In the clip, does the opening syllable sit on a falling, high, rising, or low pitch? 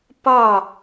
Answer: falling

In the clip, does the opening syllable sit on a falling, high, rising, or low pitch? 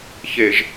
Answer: low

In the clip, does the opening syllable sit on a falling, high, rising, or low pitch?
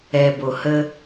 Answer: low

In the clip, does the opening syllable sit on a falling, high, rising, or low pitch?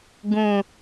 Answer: low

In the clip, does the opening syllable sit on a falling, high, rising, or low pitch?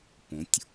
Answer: rising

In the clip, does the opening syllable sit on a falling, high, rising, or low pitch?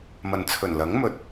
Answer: low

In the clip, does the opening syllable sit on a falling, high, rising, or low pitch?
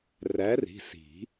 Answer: rising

